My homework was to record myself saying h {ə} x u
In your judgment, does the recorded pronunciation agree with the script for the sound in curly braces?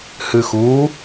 no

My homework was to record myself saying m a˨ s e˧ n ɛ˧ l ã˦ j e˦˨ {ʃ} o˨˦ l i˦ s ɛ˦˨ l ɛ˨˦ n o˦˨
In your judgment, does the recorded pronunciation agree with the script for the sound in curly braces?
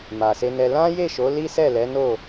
yes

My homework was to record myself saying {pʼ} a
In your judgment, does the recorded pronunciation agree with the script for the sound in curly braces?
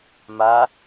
no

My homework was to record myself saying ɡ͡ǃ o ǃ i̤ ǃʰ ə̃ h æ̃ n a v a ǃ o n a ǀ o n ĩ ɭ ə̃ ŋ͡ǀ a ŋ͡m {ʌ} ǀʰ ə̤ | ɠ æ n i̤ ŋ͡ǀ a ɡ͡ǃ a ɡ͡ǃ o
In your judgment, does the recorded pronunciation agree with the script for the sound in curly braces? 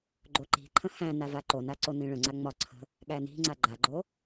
no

